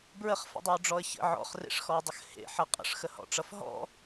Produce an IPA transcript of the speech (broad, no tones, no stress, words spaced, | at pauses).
bɹəχfə̰dˤɛʊ̯ɖ͡ʐɔə̯ çə̰ ʕɔ̰χrḛʂxɔɪ̯dˤəx hḛħʌ qʼə̰ʂxəhɔ̰ʈ͡ʂʌf ɦɔ̰